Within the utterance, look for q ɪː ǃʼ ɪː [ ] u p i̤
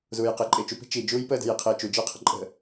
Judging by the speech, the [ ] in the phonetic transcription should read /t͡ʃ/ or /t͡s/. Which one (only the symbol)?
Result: t͡ʃ